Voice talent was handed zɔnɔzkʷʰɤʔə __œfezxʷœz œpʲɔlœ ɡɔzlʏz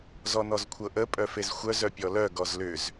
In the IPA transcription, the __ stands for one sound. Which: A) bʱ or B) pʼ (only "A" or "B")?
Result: B